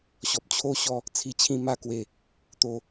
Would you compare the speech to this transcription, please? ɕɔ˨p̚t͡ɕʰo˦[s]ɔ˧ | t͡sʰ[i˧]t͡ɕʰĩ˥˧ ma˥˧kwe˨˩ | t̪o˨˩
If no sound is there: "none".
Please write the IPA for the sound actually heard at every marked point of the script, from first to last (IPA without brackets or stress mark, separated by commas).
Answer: ɕ, i˧